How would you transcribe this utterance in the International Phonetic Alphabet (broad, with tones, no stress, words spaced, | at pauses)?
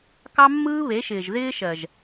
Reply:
kɑ˦mːɯː˦βe˨˦ʃɪː˨ʒ ðɪː˦ʃɜ˨ʒ